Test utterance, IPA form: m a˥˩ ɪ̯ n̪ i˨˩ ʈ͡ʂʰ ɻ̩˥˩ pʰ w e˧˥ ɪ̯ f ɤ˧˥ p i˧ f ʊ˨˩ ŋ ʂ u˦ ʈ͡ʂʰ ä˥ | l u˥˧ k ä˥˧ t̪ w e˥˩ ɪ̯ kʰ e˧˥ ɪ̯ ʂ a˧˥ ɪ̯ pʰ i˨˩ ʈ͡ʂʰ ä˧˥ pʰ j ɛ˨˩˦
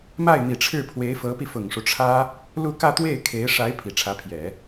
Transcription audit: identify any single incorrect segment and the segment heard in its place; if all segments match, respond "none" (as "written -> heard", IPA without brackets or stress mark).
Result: none